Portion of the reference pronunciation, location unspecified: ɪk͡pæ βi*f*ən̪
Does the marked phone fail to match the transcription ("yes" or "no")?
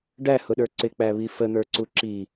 no